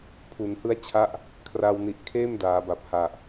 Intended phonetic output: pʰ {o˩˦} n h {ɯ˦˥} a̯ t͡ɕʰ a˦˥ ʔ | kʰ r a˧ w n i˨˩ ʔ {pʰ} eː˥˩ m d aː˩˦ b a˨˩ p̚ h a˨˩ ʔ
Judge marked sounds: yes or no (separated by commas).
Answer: no, yes, no